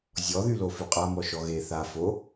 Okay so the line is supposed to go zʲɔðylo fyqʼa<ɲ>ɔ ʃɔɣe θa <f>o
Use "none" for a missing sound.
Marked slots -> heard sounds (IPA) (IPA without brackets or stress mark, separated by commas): m, f